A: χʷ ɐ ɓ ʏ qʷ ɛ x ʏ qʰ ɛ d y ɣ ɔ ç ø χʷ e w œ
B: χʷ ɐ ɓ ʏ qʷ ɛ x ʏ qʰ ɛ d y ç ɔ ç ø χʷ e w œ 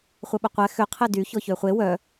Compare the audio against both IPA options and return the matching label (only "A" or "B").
B